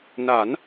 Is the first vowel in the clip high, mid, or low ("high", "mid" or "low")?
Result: low